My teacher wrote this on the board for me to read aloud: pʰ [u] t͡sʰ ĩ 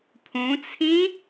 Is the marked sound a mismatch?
yes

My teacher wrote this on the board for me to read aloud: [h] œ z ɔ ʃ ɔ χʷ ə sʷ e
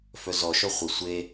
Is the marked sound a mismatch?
yes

